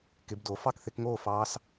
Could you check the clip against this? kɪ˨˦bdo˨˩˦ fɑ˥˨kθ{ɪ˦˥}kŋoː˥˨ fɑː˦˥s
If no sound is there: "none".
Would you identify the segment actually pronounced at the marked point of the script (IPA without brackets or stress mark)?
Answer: ɪ˨˦